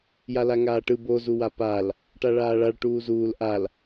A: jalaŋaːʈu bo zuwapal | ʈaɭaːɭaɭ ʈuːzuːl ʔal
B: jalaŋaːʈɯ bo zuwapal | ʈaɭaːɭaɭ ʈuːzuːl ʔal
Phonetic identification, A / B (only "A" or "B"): B